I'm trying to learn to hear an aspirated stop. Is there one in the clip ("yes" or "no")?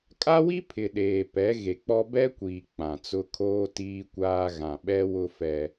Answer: yes